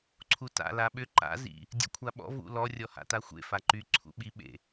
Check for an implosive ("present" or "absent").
present